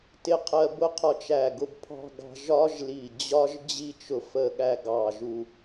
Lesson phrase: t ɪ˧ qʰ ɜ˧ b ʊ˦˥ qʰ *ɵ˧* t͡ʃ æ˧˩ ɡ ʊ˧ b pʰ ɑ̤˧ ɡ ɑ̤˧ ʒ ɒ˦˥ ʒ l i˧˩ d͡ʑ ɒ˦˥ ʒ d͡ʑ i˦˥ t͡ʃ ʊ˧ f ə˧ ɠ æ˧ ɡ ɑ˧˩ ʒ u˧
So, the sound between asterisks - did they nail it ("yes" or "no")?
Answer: no